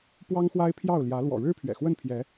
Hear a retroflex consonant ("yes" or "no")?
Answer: yes